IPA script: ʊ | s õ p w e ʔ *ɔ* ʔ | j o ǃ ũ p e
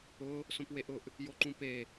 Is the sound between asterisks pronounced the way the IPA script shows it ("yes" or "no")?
no